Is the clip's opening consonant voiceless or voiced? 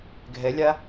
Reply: voiced